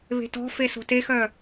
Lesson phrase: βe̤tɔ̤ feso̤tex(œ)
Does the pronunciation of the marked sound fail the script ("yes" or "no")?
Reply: no